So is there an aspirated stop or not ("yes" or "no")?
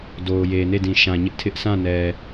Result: yes